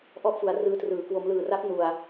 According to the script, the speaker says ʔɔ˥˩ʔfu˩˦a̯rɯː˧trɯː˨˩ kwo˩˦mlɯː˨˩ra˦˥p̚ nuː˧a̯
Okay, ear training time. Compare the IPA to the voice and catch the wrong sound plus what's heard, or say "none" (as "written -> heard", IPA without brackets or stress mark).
uː˧ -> u˧